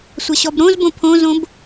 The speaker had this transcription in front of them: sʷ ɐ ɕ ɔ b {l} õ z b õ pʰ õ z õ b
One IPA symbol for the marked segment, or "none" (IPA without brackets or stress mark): ɾ